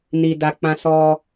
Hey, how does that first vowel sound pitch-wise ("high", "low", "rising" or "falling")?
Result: low